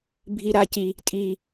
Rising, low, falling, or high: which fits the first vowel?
low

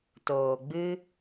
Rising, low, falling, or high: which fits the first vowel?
low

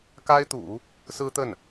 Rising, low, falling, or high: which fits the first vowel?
high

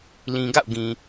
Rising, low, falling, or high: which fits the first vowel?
low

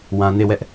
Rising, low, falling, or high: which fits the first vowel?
low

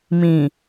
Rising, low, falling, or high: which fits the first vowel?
low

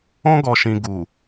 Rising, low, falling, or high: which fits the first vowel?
high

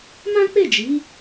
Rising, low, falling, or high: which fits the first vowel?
high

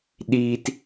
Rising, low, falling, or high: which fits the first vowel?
high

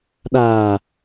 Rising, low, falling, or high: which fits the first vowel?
low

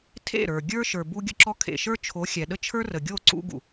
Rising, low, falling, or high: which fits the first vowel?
falling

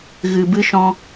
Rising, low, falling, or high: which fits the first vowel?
low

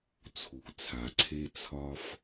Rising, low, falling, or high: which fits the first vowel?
low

